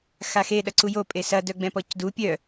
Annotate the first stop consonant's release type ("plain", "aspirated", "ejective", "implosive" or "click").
implosive